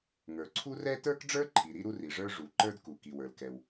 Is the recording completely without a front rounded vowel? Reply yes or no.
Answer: yes